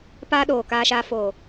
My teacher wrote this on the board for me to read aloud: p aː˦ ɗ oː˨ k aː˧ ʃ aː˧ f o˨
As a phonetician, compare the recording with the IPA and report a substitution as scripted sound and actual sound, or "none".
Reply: none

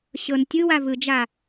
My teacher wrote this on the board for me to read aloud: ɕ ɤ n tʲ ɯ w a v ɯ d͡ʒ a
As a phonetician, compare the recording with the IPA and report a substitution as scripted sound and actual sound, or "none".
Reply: none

